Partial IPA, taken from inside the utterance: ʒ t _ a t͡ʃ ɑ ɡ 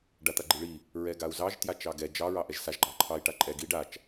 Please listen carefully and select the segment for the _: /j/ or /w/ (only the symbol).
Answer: j